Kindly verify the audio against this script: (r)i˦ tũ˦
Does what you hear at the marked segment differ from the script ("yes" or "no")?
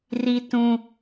no